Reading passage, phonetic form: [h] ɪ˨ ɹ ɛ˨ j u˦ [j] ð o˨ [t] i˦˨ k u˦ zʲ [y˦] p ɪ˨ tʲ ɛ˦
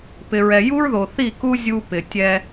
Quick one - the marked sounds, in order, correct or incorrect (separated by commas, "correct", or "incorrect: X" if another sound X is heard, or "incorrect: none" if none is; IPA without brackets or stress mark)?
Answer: incorrect: p, incorrect: ɹ, incorrect: θ, incorrect: u˦